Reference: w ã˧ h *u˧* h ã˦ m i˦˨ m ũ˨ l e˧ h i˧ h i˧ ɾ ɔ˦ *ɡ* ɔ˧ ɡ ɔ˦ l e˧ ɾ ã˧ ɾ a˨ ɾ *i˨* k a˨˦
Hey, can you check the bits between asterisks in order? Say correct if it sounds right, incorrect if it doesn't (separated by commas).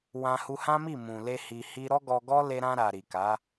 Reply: correct, correct, correct